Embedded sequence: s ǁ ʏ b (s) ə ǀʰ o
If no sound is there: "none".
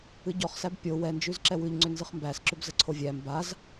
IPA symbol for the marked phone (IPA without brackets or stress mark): z